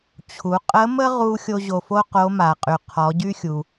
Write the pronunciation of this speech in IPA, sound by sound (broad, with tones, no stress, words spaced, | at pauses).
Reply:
t͡ɕʰu˩˧ qʼə˧˥mə˥ʁu˧ xʲo˧ʑo˩fo˥ qo˧˥ma˩qʼy˩ qʰɔ˩˧ɟy˥xʲu˩